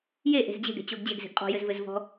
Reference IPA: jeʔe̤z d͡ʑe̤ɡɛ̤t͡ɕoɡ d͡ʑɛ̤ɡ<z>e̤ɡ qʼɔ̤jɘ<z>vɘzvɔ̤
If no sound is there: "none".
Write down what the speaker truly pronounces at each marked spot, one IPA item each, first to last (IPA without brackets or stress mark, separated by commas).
z, z